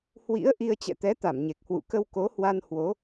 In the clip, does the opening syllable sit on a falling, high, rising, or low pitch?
rising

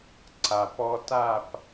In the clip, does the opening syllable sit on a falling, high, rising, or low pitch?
low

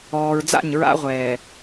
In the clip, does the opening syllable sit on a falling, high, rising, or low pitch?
low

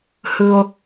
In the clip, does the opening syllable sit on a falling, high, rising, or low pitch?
low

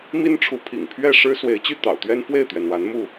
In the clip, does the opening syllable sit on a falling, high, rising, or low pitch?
high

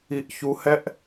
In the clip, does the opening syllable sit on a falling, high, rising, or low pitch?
high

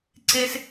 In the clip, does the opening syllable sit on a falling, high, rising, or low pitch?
high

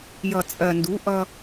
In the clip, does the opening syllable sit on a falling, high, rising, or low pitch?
low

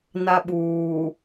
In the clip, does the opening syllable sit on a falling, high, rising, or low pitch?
high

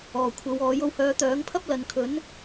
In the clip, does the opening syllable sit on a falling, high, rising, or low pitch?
low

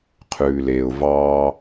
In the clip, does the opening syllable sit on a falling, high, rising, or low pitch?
low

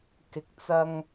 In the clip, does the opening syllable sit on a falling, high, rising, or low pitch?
low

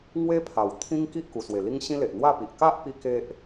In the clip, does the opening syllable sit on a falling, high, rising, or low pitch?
high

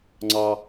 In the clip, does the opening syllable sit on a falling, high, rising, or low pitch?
high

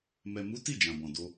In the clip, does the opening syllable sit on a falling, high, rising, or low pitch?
low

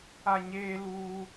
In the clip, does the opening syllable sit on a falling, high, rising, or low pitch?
falling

